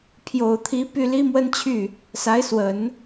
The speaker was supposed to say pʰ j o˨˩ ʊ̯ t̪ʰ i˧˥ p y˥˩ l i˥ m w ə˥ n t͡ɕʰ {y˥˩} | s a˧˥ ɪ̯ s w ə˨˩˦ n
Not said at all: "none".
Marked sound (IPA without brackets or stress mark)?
y˥˩